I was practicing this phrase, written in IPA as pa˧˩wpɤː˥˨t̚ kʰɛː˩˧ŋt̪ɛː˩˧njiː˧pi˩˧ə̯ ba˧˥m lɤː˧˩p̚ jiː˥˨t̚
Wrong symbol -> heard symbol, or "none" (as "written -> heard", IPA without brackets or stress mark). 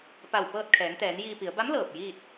none